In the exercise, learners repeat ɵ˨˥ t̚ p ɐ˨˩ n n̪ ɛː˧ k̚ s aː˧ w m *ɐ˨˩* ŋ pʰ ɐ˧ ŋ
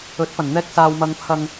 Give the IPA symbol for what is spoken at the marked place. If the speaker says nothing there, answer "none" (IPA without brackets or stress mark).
ɐ˧